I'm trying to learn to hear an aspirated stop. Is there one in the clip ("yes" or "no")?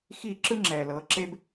no